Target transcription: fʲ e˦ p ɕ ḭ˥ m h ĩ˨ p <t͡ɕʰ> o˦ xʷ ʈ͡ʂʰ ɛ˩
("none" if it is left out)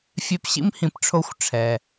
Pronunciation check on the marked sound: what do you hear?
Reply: ʈ͡ʂʰ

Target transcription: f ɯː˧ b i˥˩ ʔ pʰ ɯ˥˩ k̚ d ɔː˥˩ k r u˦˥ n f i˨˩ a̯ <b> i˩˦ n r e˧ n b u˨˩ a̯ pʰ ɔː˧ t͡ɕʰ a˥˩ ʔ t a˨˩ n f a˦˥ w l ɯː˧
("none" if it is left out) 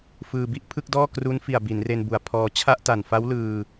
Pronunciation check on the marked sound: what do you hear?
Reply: b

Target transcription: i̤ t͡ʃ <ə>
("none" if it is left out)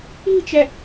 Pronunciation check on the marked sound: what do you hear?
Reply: ɛ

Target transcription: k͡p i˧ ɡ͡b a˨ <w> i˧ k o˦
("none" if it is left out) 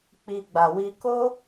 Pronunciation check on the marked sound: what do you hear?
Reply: w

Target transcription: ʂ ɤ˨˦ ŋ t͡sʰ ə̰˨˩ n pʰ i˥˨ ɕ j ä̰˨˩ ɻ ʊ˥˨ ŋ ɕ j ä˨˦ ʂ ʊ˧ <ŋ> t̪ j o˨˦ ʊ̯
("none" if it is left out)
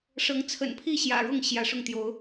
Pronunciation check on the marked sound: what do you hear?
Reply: ŋ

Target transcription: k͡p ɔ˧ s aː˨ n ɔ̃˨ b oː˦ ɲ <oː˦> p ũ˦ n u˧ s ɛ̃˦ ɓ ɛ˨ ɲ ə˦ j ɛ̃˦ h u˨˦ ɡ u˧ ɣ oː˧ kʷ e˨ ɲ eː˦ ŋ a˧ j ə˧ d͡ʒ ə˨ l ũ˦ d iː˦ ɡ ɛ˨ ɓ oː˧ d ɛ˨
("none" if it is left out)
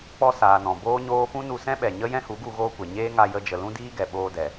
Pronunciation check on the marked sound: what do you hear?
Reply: oː˦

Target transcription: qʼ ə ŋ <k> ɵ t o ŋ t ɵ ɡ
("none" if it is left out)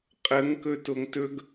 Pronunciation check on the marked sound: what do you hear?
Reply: k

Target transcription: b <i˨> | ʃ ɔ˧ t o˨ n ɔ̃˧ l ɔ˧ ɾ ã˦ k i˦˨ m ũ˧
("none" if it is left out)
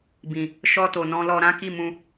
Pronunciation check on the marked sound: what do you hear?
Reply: ĩ˨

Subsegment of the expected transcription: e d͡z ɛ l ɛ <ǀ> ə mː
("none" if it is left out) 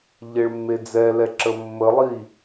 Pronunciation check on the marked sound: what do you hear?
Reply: ǁ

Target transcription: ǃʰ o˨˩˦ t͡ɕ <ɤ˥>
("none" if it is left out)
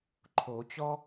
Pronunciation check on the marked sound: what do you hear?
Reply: ɔ˥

